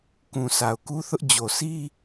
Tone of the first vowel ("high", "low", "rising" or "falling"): low